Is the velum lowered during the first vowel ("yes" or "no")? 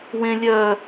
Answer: yes